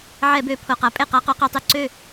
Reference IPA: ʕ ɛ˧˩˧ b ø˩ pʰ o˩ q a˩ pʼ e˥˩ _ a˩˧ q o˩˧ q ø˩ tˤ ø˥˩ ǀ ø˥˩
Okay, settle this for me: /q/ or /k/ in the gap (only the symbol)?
q